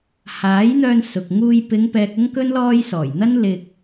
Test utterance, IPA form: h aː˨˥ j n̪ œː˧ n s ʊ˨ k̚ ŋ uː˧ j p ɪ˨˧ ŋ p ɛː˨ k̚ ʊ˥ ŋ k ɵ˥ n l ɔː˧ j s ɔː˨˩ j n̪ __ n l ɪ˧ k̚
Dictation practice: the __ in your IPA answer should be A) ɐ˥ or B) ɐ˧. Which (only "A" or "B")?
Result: A